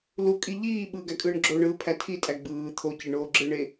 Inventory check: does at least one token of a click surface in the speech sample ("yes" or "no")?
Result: yes